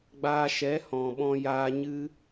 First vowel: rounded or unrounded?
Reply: unrounded